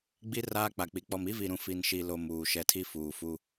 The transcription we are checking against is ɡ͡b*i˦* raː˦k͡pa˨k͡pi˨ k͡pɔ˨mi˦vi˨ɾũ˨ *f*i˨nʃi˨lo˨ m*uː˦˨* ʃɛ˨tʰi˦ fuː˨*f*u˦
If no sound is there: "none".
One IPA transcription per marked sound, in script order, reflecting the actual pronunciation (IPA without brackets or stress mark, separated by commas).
i˦, f, uː˨, f